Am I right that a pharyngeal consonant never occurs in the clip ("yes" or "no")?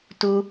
yes